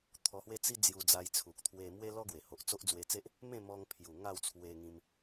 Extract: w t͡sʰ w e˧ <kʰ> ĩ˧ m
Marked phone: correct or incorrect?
incorrect